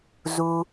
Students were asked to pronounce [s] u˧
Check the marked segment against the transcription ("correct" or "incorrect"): incorrect